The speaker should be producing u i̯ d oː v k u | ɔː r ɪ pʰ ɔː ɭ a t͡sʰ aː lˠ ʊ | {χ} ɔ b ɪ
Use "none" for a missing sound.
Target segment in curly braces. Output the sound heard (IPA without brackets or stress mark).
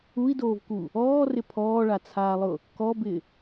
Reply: k